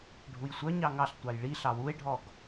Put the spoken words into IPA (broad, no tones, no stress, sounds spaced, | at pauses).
ɖʱ u j sʷ œ ɲ ɑ ŋ ɑ ɬ tʷ ɑ j ɭ i ɬ ɑ w u e̯ ɖʱ ɔ ɡ